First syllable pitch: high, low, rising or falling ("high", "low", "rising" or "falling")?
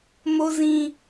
high